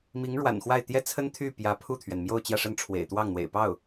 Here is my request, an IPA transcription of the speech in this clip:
mi˧˥ŋɻwa̰˨˩nxwa˥˩ɪ̯ t̪jɛ˥t͡sʰə˥nt̪ʰy˥˩ pjä˧˥pʰu˥˩t̪ʰɥɛ˩nmjo˥˧ʊ̯ t͡ɕjä˥˧ʂə˥˩nʈ͡ʂʰwḛ˨˩ɪ̯t̪wɑ˥˩ŋ n̪wḛ˨˩ɪ̯pɑ˥˩ʊ̯

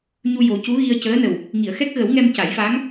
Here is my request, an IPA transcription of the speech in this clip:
ɲu˧jo˨˩˦ cu˧˥ɣi˧ə̯cəː˧˥nə˨˩w | ŋi˨˩˨ə̯xɛ˦˥k̚ɣə˨˩˦wŋɛ˧m ca˨˩˦jfaː˧˥ŋ

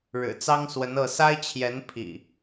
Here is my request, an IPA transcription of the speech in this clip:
ɻɻ̩˨˩ t͡sɑ˦ŋswə˨˦nɤ˥˨ sa˦ɪ̯t͡ɕʰjɛ˨˦n pʰḭ˨˩

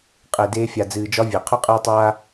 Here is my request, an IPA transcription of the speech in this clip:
qʼe˨deː˧fʲa˨ d͡zɨː˨d͡ʒɒ˧ vʲe˨qʰu˦qʼeː˦tˤaː˦

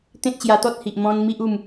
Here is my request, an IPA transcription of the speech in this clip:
t̪ẽ˦t̚ɕja˧t̪ɔ˦t̚hi˨ʔ mɔ̃˧n mi˦ʔu˥˧m

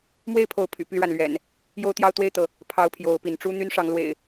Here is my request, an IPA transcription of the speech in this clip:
mwe˥˨ɪ̯pʰo˨˦ʊ̯ pʰy̰˨˩py˥˨ɻa˩nlɥɛ̰˨˩n | jo˦ʊ̯t̪jɑ˦ʊ̯t̪we˥˨ɪ̯t̪ɤ˩ | pʰɑ˦ʊ̯pʰjo˨˦ʊ̯pi˨˦n ʈ͡ʂu˦ n̪y˦nʂɑ˨˦ŋlwḛ˨˩ɪ̯

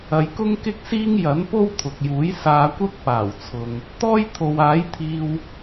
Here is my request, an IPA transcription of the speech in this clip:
ɐ˨jkʊ˥ŋkɪ˥k̚siː˥ŋ jɐ˨˥npo˥wt̪ʰʊ˨k̚juː˨˥j saː˧kʷɐ˥k̚paː˨˩wt͡sʰʊ˨ŋ | t̪ɔː˥jt̪ʰo˨waː˨˥jt̪ʰiː˧w

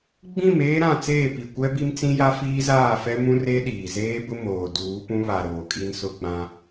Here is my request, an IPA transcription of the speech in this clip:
ɡ͡bĩ˦˨m eː˦ɾã˦˨t͡seː˦˨pi˨ kʷɛ˦bi˦mt͡sĩ˦ja˦ fiː˦zaː˦˨fɛ˦ mũ˦re˦ ɗiː˨zeː˦bʊ˦ moː˨ duː˨˦pũ˦βa˨ ɾoː˨kʼi˦nsʊ˦ɡ͡bã˦

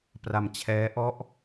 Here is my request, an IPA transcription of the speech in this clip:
pra˧mt͡ɕʰɛː˦˥ ʔɔ˦˥ʔ

